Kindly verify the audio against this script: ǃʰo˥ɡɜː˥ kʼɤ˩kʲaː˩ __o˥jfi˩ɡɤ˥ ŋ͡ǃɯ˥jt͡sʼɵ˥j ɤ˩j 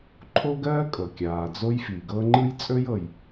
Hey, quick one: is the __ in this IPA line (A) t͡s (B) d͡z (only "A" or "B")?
B